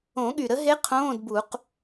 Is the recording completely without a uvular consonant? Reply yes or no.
no